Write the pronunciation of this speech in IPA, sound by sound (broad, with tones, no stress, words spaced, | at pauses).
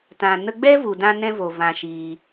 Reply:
tã˨ nə˧ɡ͡bɛ˦vu˨dã˧ nɛ̃˦vo˨ vã˨ ʃiː˧